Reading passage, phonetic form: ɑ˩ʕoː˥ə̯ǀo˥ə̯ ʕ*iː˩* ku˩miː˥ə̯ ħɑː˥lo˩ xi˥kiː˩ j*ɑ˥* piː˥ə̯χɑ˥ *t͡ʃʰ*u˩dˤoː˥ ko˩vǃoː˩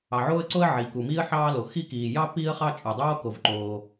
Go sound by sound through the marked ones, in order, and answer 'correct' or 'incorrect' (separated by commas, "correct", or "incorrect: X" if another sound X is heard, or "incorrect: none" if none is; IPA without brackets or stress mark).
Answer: incorrect: i˩, correct, incorrect: t͡ʃʼ